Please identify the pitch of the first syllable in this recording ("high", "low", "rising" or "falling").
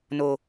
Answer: low